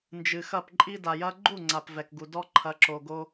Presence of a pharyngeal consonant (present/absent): absent